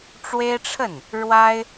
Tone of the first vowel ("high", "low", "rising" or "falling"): high